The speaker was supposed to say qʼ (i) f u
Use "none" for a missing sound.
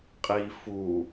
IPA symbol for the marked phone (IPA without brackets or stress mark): i